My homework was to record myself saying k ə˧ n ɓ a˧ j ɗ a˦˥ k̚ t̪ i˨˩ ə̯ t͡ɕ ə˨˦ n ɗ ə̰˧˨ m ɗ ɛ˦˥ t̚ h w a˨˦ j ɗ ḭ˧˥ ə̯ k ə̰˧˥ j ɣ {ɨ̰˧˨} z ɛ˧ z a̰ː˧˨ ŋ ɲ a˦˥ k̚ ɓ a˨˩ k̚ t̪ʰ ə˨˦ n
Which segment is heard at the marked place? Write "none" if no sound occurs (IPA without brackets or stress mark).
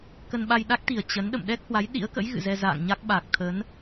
ɨ̰˧˨